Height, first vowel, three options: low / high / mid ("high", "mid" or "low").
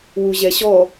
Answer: high